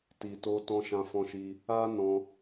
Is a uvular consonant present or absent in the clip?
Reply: absent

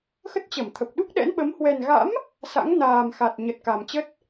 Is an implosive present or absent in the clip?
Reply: present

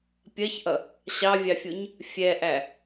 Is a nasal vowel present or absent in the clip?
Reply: absent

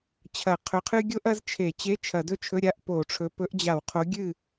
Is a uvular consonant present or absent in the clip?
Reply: present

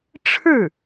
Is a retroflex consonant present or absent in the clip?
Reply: present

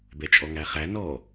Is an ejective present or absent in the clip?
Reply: present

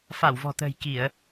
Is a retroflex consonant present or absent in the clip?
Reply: absent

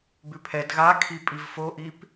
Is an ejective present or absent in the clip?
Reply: present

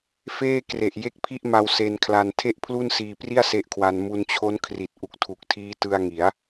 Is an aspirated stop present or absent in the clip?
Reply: present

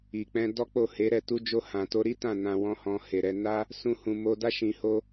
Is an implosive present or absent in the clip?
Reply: absent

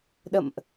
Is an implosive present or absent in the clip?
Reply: present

